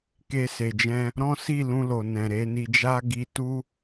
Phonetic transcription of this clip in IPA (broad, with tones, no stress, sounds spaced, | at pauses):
k e˧ s e˨ d͡ʒ ɛ̃˧ | ɾ ɔ̃˦ s i˦˨ l ũ˧ l o˨ n ɛ̃˨ ɾ e˧ n i˧ d͡ʒ a˦ ɡ i˧ t u˦